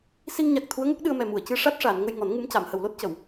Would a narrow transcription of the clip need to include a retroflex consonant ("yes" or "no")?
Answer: yes